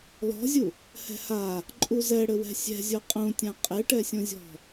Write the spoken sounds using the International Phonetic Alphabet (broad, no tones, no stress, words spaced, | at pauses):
lɔ̤zʲu | hɛ̤ha | ǃʼuzɛɽɘwɛ̤ sʲɛ̤zʲo qʼũtʲã qʼeʈɛsʲõzʲɔ̤